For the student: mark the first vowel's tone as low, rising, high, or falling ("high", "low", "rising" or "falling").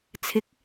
rising